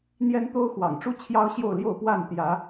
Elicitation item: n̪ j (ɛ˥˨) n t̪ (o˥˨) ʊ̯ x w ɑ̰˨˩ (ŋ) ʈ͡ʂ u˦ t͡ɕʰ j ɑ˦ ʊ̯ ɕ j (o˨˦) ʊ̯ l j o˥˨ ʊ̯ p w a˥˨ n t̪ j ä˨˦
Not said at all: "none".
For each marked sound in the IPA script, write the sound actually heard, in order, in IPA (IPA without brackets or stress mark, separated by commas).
ɛ˦, o˦, ŋ, o˥˨